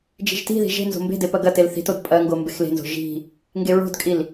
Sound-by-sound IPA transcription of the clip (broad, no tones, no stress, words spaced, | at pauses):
d͡ʒi̤ʒti̤ði̤ ʒe̤ nzo̤mbe̤de pɐɡɐtel θi̤tod pʼɐŋɡo mbexle̤nzo̤ ʒi̤ | ŋɡeɹo̤dkʼil